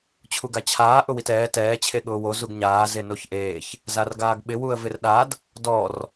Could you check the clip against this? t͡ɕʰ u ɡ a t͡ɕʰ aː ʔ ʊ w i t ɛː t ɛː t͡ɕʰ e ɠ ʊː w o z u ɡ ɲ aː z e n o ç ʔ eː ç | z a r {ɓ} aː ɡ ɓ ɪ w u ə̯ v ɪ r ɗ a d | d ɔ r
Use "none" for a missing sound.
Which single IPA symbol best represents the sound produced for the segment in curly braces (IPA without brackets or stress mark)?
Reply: ɡ